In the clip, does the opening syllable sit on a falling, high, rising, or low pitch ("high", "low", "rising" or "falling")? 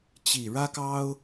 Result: low